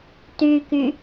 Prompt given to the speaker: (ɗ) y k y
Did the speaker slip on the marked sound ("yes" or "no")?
yes